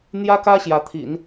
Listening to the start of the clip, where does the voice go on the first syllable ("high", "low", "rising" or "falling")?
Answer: high